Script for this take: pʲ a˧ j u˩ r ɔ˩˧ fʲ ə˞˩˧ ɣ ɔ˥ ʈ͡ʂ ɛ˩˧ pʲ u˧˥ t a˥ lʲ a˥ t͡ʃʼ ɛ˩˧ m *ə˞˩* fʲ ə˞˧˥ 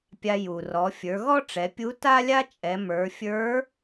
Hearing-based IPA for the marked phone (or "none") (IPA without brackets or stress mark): ə˞˩˧